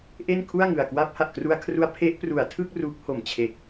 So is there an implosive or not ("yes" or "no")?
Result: no